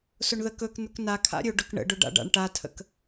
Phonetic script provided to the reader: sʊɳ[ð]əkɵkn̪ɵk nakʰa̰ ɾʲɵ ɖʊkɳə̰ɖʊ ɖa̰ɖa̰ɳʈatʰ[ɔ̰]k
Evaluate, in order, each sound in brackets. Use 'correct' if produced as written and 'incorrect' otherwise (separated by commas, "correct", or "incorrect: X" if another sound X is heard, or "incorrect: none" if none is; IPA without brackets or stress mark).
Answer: correct, incorrect: ə̰